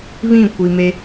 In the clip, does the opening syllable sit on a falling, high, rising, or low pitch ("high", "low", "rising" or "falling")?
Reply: falling